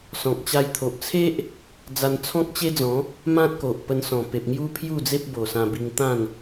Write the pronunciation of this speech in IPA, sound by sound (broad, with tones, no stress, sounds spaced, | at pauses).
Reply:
s ɔ̃˨ k̚ t͡ɕ a˧ j t̪ʰ o˨ ʔ t͡sʰ e˦ ʔ | d͡z a˧ n t͡sʰ ɔ̃˦ k̚ t͡ɕ e˦ d͡z ɔ̃˨˦ | m ã˦ t̚ k o˨ ʔ p ə˧ n s ɔ̃˨˩ p e˨ p̚ ŋ j u˦ pʰ j u˥˧ d͡z e˦ p̚ b o˨˩ s ã˧ b i˧ ŋ t̪ ã˥˧ n